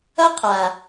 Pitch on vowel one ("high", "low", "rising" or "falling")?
high